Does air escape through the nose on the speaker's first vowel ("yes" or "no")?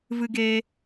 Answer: no